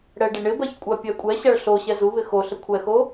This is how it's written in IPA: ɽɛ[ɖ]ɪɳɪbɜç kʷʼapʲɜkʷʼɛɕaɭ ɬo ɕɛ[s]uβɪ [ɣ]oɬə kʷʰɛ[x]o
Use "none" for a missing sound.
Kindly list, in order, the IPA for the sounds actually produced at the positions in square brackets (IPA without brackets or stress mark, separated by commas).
ɖ, z, x, x